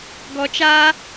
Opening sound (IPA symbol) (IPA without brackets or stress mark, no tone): ɡ